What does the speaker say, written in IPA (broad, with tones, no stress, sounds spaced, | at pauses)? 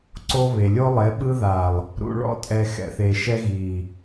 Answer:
ǀ o˦ β e˨ lʲ o˦ lˠ e˨˦ ɓ ɯ˦ ð a˨ lˠ | ɾ ṵ˨ ɭ ɔ̰˦ tʼ ɛ˨ x ɛ̰˨ θ e˨ ʃ ɛ˦ ɣ i˨